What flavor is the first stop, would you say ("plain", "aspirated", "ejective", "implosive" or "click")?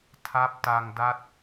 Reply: aspirated